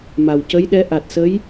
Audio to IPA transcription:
ma˨˩wcə˧˥jɗɛ˧˥ ʔa˨˩t̚sə˧˥j

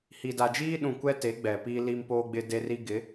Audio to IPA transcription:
hi˨da˨d͡ʒiː˦ɗũ˨ kʷɛ˦te˨˦ ɡ͡bɛ˨ piː˦li˦mpoː˦ɡ͡bɪ˦ de˦ri˦ ɡɪ˨˦

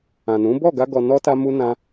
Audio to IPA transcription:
ã˨nũ˨˦ bɔ˦˨ɡa˧ɡɔ˨ nɔ˧ta˧mu˧ nã˦

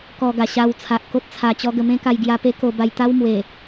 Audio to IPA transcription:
kɔ˧ɡa˨˩ɕa˧wt͡sʰa˨ʔ ko˦t̚t͡sʰa˧ t͡ɕɔ˧ ɡə˧mẽ˦ ka˧jɡja˧pe˦ ko˧ba˧jt̪a˦wmwe˨˩

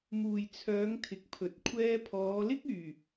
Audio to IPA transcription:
muː˨jt͡sʰœː˨˧ŋ t̪ʰɪ˨˥k̚pʰɵ˨t̚ kʷʰɛː˧pʰɔː˨˧lɪ˥k̚ yː˨˩

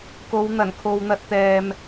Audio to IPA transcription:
ko˨˧wn̪ɐ˨˩nkʰo˨wn̪ɐ˧t̚ t̪ɛː˨m

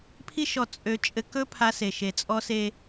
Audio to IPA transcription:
pʰi˦ʃɔ˧ t͡sʼø˧ t͡ʃʼɘ˧kɵ˦pʰa˧se˨ ʃe˨t͡sʼɔ˧ se˦

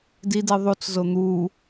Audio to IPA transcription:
didi ðˤut͡szo n̪u

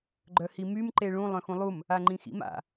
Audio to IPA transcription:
ɡ͡ǃœhimym ǃeɭũ lˠœ̃xũlˠum | aŋ͡ǃĩxḭm a̰

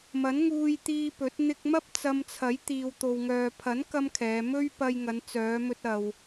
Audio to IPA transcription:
mɐ˨˥nŋuː˧jt̪iː˧ pɵ˨˥t̚ n̪ɪ˧k̚mɐ˥p̚ t͡sɐ˧mt͡sʰɐ˨˥j t̪iː˨wt̪o˨wŋœː˨ pʰɐ˨˥n kɐ˥mkʰɛː˨˧ mɵ˥ɥ pɐ˧jŋɐ˨˧nt͡sœː˨˧mɵ˧t̚ ɐ˨w

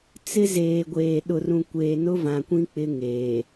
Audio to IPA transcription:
t͡sɪ˦zeː˨ɡʷeː˨ ɗʊ˨rũ˨ kʷeː˨nʊ˦vã˨kʷĩ˦ k͡pɪ˦ŋeː˨

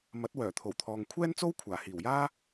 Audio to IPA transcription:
mɐ˨˥t̚wœː˨˩ t̪ʰo˨˩wt̪ʰɔː˨ŋkʷʰɛː˥nt͡so˥w kʷʰaː˨˩hiː˨˩wjaː˥

